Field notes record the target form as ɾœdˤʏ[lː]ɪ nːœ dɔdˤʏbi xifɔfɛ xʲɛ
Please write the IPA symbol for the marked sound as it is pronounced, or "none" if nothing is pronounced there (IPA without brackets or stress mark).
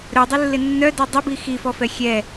lː